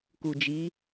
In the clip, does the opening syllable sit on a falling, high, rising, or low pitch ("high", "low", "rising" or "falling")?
low